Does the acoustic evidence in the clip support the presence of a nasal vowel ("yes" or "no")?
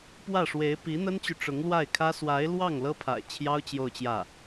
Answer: no